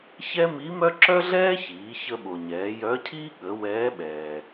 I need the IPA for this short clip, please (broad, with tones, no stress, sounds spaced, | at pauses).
ç ɛ˥ m i˧˥ m œ˥ ǁ œ˥ ɮ ɛː˥ ç iː˩˧ ç ə˧ ɓ o˩ ɲ ɛː˩˧ j œ˧˥ cʰ iː˥ ɠ ə˩˧ w ɛː˧˥ ɓ ɛː˩